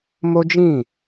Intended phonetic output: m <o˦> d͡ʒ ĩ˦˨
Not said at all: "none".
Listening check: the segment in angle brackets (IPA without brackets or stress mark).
o˦